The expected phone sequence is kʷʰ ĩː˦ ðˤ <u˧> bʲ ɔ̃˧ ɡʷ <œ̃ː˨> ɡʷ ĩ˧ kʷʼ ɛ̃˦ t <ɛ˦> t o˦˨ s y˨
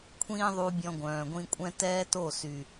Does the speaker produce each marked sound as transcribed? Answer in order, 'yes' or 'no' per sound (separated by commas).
yes, yes, no